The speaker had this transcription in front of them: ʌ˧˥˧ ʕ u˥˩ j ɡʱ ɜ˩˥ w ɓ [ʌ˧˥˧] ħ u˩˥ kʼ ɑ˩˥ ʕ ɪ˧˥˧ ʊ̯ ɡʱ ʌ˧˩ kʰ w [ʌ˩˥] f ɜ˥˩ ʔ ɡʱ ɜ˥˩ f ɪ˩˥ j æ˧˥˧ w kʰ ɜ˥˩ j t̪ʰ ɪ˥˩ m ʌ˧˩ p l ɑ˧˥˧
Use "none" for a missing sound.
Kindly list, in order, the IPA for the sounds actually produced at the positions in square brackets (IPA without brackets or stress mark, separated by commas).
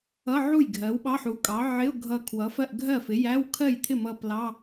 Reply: ɑ˧˥˧, ʌ˩˥